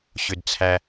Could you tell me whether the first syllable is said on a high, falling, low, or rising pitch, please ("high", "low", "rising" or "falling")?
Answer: low